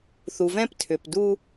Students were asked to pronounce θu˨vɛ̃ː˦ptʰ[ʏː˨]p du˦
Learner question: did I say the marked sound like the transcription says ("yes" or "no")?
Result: yes